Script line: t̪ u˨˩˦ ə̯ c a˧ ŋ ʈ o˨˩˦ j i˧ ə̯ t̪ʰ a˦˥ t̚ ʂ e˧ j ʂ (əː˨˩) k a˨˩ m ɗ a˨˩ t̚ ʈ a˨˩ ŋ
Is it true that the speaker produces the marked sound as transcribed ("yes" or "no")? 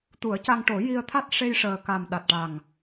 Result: yes